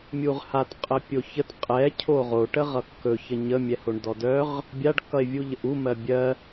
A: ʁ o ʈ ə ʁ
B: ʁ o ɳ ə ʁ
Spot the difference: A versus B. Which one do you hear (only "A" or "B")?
A